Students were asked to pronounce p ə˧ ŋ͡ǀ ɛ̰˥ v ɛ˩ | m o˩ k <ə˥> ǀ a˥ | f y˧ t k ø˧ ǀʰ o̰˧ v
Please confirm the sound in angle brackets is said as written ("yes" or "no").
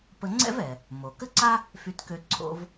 yes